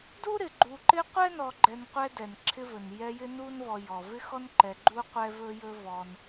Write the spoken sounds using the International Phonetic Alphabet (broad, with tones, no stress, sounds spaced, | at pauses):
d u˥ ɾ ɪ˩ ɡ͡ǃ u˨ ǃ ɪ˦ qʷ ɛ˥ n ɔ˨ ɡ͡ǃ ɛ˨ n qʷ ɛ˦ d ɛ˩ n ǁʰ ɪ˦ v ɵ˩ n j ɛ˦ j ɪ˥ n u˥ n v ɔ˨ j ɔ˩ v ɪ˥ x ɔ˥ n ǃ ɛ˨ ɡ͡ǃ u˥ qʷ ɛ˥ v ɵ˥ j ɵ˥ v ɔ˦ n